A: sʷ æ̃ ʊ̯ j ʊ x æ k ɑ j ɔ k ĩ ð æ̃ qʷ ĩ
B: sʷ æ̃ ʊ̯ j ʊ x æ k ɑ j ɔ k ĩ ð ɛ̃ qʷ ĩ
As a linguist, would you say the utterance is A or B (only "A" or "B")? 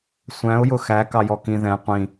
B